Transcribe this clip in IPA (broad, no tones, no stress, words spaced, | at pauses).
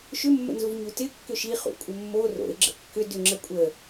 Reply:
ʃʏmːə̰nzuv ɲutɪ kːʏʃi χṵkʷʼəmːo ro̰ɪ̯ ɡ͡ǁə̰kːʏ dʏŋ͡ǁə kʷʼə